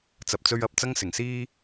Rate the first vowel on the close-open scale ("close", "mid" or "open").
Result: open